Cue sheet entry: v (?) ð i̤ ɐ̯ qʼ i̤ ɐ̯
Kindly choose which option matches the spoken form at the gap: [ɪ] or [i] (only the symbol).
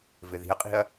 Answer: ɪ